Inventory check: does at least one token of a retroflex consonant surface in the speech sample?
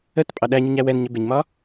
no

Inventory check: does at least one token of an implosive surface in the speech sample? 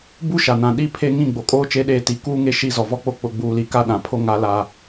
yes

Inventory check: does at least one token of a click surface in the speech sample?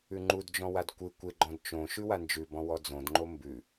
yes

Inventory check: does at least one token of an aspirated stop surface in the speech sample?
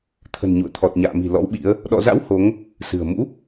yes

